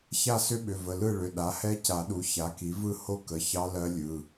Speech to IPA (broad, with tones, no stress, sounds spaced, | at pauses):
ç a˥˨ s ʏ˦˥ ɓ ʏ˩˧˩ v ə˩˧˩ l ɯ˥˨ ɭ ʏ˩˧˩ ɗ a˩˥ h ɛ˦˥ c a˨˩˦ ɗ u˩˥ ç a˩˥ k i˩˥ v ɯ˥˨ h o˦˥ k ə˩˧˩ ç ɑ˦˥ l ɜ˦˥ lʲ ɯ˩˧˩